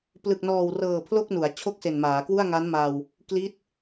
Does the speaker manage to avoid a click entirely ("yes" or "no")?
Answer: yes